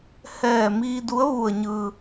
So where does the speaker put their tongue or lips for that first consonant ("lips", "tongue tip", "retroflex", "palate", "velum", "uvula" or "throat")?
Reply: throat